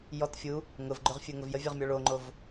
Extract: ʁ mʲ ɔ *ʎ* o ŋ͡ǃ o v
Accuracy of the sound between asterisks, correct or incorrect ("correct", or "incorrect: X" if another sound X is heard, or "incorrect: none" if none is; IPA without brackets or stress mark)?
incorrect: ɭ